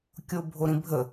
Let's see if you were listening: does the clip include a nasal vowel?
yes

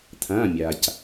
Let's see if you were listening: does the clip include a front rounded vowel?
no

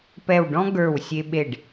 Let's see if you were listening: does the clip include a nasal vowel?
yes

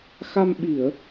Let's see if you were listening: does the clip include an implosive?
yes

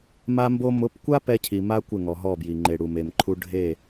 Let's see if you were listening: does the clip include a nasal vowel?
no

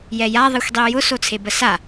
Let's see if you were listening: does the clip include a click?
no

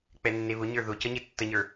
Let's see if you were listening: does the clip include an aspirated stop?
no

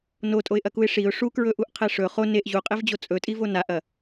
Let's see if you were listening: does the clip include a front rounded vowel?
no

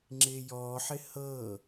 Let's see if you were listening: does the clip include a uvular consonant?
no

